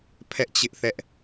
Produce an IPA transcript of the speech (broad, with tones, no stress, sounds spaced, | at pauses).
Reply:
pʰ ɛ˦ ʔ t͡ɕ ɪ˦ ʔ θ ɛ˦ ʔ